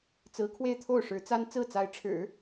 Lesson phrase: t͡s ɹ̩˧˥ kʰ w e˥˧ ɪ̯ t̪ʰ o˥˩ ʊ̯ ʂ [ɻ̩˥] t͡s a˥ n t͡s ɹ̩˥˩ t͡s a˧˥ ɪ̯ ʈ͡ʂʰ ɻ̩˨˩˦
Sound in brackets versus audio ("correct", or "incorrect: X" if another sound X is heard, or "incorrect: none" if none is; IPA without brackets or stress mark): incorrect: ɻ̩˧˥